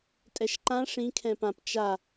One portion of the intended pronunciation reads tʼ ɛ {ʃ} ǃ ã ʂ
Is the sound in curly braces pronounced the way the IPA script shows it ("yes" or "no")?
yes